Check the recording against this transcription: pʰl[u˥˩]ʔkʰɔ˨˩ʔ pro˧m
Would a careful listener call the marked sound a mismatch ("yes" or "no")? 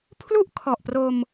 no